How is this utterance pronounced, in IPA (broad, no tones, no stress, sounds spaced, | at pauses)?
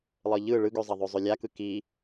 lˠ ɤ ʎ ɯ ɭ ɯ ɡ ø zˤ ɐ ðˤ ø zˤ ø lʲ a k ɯ k i